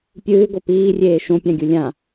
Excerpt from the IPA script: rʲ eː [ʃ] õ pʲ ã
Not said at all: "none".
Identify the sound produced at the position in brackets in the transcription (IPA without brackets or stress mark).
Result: ʃ